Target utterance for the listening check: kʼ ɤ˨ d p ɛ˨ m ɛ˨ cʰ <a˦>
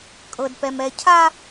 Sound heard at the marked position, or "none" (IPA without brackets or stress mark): a˦